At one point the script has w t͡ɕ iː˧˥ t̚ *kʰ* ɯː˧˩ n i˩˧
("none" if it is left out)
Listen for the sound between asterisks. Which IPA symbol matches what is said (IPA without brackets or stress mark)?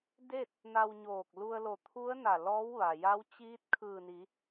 kʰ